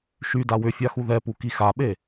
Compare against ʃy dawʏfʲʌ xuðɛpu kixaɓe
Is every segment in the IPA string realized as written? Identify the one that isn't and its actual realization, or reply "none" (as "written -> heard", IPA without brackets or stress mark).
ʌ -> a